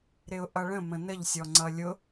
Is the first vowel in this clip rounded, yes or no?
no